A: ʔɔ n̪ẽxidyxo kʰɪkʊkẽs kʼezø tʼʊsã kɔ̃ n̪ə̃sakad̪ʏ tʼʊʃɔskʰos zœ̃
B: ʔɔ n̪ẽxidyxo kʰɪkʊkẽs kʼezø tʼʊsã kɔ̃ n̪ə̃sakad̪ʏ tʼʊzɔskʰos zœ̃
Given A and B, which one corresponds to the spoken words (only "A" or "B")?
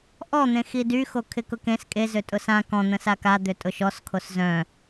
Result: A